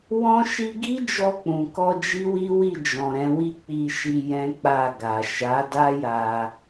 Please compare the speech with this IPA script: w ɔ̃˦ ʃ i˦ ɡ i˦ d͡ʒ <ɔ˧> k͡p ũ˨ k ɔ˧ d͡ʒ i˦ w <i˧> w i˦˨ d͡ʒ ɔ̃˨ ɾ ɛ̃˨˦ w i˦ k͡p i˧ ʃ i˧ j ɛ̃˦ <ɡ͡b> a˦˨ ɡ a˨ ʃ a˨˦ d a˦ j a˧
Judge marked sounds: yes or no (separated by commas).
yes, no, no